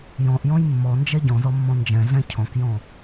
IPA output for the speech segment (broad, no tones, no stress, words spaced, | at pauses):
jɔ̃ʔjɔ̃j mːɔnd͡ʒɛ ɟɔ̃zɔmːɔ̃ nd͡ʒɛ̃ɮɛ̃ cʰɔ̃kjɔ̃